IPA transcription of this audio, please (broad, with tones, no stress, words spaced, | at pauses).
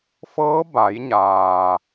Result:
fɤː˧˥ ba˩˧jɲaː˩